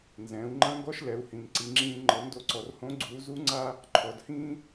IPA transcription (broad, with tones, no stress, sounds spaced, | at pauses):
n z ɛ̃ː˩˧ u̯ ŋ͡ǃ ã˥ ŋ ɡ ɔ˥ ʃ l ɛ˩˧ u̯ h ĩ˩ n ǀ i˩˧ ŋ͡ǁ ĩː˧ ŋ͡ǃ ɤ˩˧ n d o˧ ǀ ɔ˩ r h õ˧˥ ɡ͡ǀ uː˩˧ z u˧˥ ŋ͡ǀ a˥ | ǃʰ ɔ˩˧ d h ĩː˥